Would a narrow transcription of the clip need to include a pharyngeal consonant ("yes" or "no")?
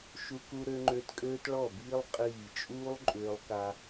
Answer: no